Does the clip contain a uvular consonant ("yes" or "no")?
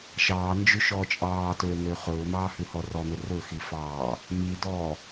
yes